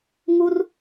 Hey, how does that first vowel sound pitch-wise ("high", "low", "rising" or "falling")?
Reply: high